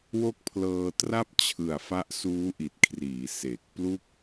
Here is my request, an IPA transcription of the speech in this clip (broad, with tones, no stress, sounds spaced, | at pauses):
w o˥˩ k̚ pʰ l ɤː˧ t r a˥˩ p̚ t͡ɕʰ ɯ˨˩ a̯ f a˦˥ ʔ s uː˦˥ ʔ i˨˩ t̚ kʰ r iː˩˦ s e˨˩ k̚ p l u˥˩ k̚